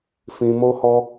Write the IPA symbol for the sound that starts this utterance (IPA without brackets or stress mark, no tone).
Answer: f